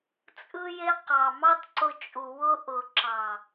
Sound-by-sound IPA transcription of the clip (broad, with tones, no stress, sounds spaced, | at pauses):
t͡sʼ ɯ˧ j e˧ q ɑ˨ m ɑ˦ t ǀ ʊ˧ t͡ʃʼ u˨ w ʊ˧ ʔ ʊ˨ ǁ ɑ˨